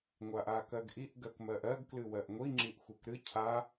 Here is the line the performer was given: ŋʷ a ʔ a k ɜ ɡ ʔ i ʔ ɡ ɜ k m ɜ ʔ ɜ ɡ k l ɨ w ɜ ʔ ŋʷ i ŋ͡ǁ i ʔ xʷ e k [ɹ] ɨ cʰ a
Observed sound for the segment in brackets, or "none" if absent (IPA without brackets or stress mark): ɾ